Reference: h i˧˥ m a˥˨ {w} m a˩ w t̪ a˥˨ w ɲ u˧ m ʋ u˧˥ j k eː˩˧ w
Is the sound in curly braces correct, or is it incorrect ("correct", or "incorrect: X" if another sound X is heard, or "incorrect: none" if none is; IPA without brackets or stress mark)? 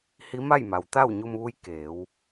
incorrect: j